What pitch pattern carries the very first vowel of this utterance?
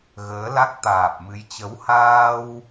rising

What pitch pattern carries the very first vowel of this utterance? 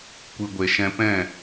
low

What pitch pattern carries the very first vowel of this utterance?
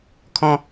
high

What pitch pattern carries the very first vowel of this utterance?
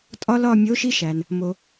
high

